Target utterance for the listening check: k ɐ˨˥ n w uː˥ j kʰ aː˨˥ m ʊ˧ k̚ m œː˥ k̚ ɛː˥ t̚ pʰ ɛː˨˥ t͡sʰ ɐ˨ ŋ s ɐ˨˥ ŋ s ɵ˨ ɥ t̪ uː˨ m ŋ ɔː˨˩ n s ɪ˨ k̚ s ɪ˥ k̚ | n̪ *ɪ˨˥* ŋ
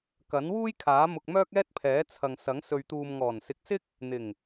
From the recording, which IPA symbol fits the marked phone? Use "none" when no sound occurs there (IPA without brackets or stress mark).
ɪ˨˩